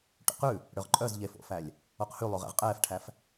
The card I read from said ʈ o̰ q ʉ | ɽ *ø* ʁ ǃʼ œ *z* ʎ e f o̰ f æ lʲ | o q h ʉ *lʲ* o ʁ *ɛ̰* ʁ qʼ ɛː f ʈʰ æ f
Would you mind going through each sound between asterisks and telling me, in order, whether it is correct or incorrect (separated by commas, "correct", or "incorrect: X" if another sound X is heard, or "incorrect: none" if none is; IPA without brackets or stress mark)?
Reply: correct, correct, incorrect: lˠ, correct